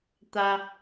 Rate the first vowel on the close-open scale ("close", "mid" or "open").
open